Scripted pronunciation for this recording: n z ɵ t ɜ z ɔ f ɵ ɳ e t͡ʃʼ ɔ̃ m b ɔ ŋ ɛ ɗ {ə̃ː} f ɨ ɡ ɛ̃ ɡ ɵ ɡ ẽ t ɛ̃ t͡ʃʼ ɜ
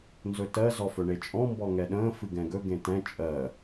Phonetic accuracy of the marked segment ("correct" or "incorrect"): correct